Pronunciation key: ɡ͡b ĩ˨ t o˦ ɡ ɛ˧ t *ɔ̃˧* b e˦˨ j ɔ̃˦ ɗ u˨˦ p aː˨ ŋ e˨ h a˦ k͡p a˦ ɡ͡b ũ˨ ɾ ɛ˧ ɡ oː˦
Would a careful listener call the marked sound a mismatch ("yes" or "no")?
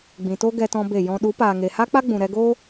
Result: no